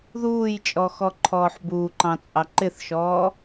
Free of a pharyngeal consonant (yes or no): no